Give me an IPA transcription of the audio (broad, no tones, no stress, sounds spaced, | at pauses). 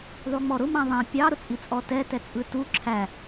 ðˤ u ŋ͡m ɔ ɾ ʊ m ã ðˤ ã pʲ ɑ ɾ ʊ t͡sʼ i t͡sʼ ɔ t ɛ t ɛ t͡sʼ ɯ t u ǁʰ æ